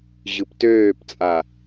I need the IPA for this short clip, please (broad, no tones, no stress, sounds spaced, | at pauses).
ʑ ɯ p t øː p t͡sʼ a